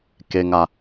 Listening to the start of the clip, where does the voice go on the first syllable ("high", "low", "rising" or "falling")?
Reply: high